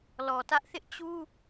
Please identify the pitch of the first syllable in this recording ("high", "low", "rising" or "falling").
low